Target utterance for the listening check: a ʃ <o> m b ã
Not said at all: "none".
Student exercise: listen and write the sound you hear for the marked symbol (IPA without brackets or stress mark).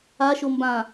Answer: o